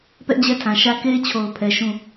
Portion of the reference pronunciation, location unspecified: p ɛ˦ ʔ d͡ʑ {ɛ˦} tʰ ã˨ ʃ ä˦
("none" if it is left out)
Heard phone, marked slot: ɛ˦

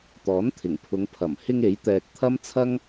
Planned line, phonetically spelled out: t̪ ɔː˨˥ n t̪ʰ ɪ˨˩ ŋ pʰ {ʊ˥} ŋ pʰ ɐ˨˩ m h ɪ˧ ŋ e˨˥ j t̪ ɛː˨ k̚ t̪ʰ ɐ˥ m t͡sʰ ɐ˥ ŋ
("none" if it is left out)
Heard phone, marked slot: ʊ˨˧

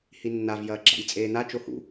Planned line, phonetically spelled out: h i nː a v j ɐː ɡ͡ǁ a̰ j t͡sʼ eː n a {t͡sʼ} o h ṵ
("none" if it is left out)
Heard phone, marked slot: t͡ʃ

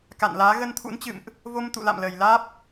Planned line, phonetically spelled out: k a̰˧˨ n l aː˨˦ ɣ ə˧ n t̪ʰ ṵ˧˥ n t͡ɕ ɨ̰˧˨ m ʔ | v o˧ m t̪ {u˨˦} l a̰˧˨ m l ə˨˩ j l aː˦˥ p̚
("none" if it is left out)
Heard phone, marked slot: ṵ˧˨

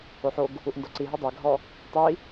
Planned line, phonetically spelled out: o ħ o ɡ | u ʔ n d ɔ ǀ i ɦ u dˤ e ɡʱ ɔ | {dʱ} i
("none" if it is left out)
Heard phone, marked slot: tˤ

